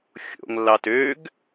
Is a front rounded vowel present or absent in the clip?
present